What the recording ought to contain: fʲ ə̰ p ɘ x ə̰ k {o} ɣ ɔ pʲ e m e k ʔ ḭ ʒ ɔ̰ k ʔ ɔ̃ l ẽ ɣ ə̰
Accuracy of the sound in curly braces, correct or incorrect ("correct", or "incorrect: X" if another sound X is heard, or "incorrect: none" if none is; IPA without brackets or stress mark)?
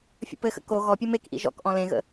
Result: correct